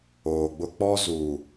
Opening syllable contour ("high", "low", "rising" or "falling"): low